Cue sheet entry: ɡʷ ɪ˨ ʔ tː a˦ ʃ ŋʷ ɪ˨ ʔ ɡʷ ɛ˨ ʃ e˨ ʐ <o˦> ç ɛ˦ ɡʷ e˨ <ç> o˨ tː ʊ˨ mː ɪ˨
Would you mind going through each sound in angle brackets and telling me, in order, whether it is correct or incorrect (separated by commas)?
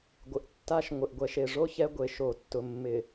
correct, incorrect